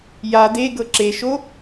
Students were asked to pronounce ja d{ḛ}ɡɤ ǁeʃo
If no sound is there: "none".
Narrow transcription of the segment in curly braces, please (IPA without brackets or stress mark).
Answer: e